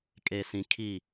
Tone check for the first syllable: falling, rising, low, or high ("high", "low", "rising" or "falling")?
low